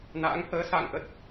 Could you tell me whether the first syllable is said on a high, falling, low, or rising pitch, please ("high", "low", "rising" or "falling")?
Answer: rising